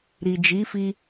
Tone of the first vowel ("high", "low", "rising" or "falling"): low